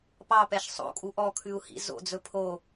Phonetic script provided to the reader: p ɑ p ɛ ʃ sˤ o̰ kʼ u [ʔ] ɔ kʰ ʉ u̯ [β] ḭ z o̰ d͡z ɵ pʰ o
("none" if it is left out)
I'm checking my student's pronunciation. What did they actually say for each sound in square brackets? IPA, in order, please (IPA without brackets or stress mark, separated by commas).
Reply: ʔ, h